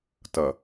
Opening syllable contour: low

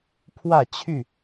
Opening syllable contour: falling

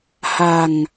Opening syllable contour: low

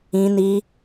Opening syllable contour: high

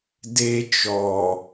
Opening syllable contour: high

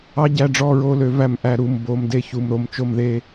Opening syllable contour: high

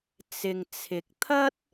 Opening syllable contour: low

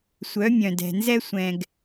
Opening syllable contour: rising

